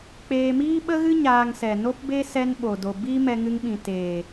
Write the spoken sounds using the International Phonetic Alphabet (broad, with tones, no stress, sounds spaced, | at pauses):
k͡p eː˧ m iː˦ ɓ ə˦ ɣ ɨ˦ ɲ aː˧ ŋ s ɛ˨ n o˦ p b e˦ s ɛ˧ n ɓ o˨ d o˨ b i˧ m ɛ˧ ŋ ɨ˧ ŋ ɓ ĩ˨ t eː˨